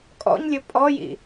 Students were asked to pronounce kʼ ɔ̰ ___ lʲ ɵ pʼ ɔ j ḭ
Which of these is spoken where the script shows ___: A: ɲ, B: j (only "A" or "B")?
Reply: A